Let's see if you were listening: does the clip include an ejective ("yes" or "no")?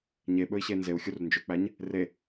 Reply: no